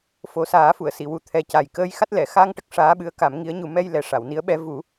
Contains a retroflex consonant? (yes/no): yes